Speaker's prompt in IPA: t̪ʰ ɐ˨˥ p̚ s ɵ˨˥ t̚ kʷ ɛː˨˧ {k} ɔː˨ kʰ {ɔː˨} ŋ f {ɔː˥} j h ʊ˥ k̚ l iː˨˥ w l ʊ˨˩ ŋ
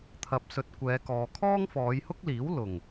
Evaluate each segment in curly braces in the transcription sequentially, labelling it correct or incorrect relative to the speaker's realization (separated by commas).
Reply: correct, incorrect, incorrect